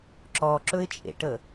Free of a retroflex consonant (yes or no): no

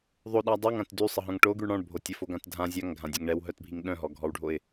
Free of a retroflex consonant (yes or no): no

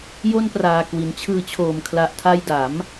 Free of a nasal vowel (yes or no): yes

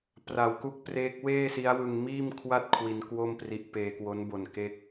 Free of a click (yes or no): yes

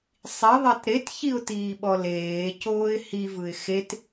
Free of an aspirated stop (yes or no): yes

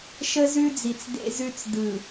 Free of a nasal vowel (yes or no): yes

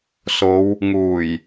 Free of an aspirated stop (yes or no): yes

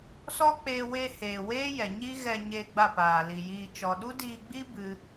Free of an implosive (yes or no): no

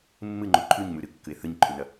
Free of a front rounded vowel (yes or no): yes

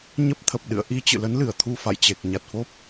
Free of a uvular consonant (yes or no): yes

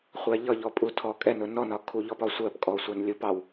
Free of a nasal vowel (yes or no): yes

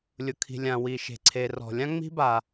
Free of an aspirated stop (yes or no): no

